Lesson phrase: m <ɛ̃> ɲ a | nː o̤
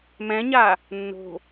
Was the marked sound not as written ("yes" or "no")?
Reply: no